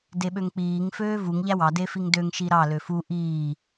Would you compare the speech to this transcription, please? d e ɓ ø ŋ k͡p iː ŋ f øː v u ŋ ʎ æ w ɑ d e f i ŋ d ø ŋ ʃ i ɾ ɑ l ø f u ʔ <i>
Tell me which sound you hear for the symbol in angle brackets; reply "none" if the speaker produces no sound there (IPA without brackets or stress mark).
iː